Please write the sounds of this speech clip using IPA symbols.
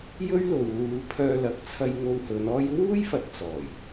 j ɵ˥ ɥ l o˨ w l uː˨˧ pʰ œː˧ l ɐ˨˥ k̚ t͡sʰ ɐ˧ j ŋ o˧ w h ɵ˨˧ n ɔː˥ j w uː˥ j f ɐ˨ t̚ t͡s ɔː˨˩ j

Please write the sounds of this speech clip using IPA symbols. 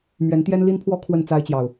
m ɥ ɛ˨˦ n t̪ j ɛ˦ n l i˦ n pʰ w ɔ˦ kʰ w ə˥˨ n t͡s a˦ ɪ̯ t͡ɕ j ɑ˨ ʊ̯

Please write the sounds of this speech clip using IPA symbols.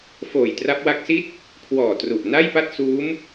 f oː˨˩ j t r a˦˥ p̚ w a˦˥ k̚ s i˥˩ t̚ | kʰ w ɔː˨˩ t r u˨˩ ʔ n a˥˩ j p a˥˩ t̚ s uː˦˥ m

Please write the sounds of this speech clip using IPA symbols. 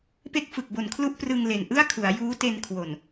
p e˦˥ k̚ f ɯ˨˩ k̚ b o˨˩ n kʰ l u˦˥ ʔ p r ɯ˧ ŋ l e˨˩ n ʔ ɯ˥˩ a̯ kʰ u˩˦ a̯ j uː˦˥ t e˧ n kʰ w o˨˩ n

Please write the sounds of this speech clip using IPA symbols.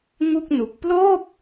ŋ u˥˩ k̚ n u˨˩ k̚ p l oː˥˩ p̚

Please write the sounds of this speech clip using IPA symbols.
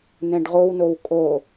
n ɛ̃ ɖ ʁ o w n o w kʼ o

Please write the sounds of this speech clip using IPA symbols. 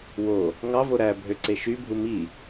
w o | ŋ ɑ v o ɾ æ bʱ ø ǀ e ʃ y bʱ u m i

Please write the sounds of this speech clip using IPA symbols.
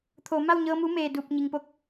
t̪ʰ oː˩˧ m a˥˨ w ɲ ɤː˧ m u˧˥ m eː˧˩ d uː˧˩ p̚ ɲ i˩ ŋ p o˧ k̚

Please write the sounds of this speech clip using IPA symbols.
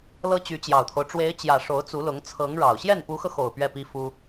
l ɤ˥ t͡ɕ y˧˥ t͡ɕ j ɑ˨˩ ʊ̯ t̪ʰ o˦ ʊ̯ ʈ͡ʂ w e˧˥ ɪ̯ t͡ɕ j ä˨˩ ʂ o˧˥ ʊ̯ t͡s u˧˥ l ʊ˧˥ ŋ t͡sʰ ɤ˧˥ ŋ ɻ ɑ˨˩ ʊ̯ ɕ j ɛ˥˩ n p u˧˥ x ɤ˧ x o˨˩ ʊ̯ p ɥ ɛ˥˩ p i˥ f u˥

